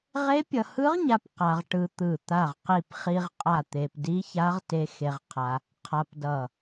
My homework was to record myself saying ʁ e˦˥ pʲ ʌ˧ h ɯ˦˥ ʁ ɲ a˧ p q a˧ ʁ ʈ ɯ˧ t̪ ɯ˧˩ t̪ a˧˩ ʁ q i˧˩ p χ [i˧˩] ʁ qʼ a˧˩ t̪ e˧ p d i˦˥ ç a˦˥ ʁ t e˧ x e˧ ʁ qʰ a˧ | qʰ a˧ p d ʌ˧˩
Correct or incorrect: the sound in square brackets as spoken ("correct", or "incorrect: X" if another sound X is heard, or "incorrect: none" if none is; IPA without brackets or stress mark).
incorrect: i˧